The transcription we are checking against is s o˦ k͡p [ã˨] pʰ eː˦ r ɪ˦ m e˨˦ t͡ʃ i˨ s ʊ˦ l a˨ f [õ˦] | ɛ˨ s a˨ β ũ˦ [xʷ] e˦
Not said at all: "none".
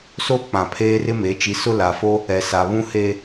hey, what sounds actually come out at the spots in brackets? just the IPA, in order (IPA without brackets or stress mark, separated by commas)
ã˨, o˦, h